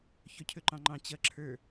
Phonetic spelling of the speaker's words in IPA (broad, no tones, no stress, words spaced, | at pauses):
çɵcʰɵǃɑ̃ŋ͡ǃɑ̃ t͡ɕʌǁʰə˞